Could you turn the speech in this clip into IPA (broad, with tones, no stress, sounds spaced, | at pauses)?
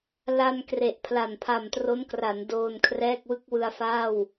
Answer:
l a˧ n k r e˨˩ ʔ pʰ l a˨˩ n pʰ a˨˩ m t r o˦˥ n k r a˩˦ n d oː˧ n kʰ r ɛː˥˩ k̚ w ɯ˥˩ k̚ w ɯ˧ a̯ f aː˥˩ w